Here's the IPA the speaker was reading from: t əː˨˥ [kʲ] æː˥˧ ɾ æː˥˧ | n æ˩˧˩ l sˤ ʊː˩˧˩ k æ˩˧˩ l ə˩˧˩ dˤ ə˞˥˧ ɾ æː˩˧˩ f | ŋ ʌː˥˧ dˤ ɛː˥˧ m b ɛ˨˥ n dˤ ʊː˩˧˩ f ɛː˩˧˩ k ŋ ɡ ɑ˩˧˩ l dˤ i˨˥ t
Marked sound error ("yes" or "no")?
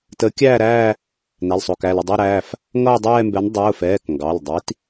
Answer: no